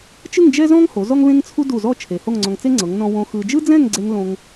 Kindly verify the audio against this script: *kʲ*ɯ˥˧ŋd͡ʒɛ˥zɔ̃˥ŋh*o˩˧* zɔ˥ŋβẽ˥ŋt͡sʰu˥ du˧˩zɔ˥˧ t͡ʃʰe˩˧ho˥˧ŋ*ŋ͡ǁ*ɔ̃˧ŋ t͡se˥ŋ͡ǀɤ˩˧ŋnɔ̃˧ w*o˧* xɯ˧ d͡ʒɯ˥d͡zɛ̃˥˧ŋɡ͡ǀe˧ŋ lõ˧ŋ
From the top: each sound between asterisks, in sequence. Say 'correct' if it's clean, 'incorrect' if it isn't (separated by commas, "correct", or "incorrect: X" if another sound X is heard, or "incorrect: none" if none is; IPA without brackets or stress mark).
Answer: incorrect: t͡ʃ, correct, incorrect: ŋ͡ǀ, incorrect: õ˧